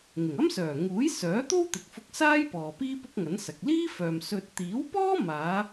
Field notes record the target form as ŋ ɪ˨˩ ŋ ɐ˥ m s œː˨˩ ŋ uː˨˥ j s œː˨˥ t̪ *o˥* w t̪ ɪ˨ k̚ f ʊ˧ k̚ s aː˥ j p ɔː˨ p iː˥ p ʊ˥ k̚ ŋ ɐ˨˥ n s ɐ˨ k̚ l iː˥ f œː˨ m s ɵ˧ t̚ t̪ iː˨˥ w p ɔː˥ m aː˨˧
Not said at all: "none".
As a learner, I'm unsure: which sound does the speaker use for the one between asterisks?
o˥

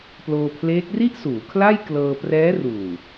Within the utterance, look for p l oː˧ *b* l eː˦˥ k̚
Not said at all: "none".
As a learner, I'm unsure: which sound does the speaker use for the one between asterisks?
pʰ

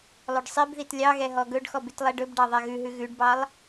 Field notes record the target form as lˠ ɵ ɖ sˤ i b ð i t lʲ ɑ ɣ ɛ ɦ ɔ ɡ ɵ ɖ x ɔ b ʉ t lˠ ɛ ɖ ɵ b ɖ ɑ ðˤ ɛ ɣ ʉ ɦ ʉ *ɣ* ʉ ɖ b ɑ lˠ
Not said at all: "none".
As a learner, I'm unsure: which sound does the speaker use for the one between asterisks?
ɣ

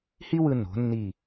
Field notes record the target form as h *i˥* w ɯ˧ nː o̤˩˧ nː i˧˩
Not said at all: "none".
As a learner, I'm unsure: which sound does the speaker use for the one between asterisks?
i˥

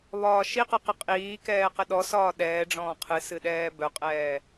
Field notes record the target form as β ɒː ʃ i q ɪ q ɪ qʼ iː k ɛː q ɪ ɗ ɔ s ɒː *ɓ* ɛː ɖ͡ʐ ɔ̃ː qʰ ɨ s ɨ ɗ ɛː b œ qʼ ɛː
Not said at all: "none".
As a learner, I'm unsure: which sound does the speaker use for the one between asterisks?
ɗ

